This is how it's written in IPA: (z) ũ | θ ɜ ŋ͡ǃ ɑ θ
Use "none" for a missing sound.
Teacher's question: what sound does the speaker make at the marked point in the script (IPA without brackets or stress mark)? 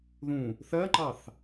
ð